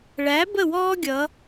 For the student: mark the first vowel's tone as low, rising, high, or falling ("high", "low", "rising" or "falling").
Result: rising